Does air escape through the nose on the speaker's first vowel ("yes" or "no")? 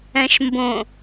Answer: yes